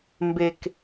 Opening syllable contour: low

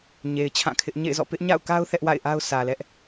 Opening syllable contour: low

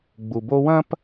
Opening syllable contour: low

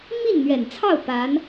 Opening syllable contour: falling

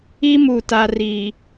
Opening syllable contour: high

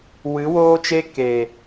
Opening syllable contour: rising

